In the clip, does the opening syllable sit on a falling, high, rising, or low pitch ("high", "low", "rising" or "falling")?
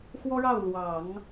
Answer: high